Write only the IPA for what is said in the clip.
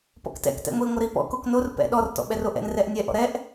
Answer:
pɔ̰ktɛ̰k tɛ̰ŋʷi ŋʷɐɾipɔ̰ koknor pɛ̰ ɗɔr tɔ̰ɓɛroʔɛ̰n rɛʔnʲɛ ʔɔ̰ɾɛʔ

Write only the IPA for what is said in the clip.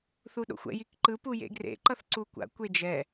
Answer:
θuɗo̰xʷɛ̰ jikǃɯ pujḛɡrḛ ǃʌθǀukʷa̰ kʷed͡ʒɛ

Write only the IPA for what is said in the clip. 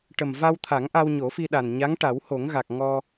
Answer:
ʈə˨˩mva˧wt̪ʰa˨˩˦ŋ ʔa˧wɲo˨˩˦fi˧ ɗa˨˩n ɲa˧˥ŋʈa˨˩˦who˨˩˦ŋɣa˨˩k̚ ŋɔ˧

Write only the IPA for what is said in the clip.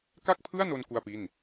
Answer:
ka˥˩k̚pʰɯ˥˩a̯no˧n ku˥˩a̯pi˥˩n

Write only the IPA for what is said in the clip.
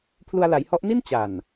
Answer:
pʰlu˧a̯la˩˦jhɔ˦˥ʔ ni˥˩n t͡ɕa˨˩n

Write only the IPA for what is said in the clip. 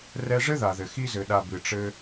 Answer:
rɛ˧ʐɘ˦ða˨ðɘ˨ xi˧zɘ˨ɗa˨ bɨ˨ʈ͡ʂɘ˧

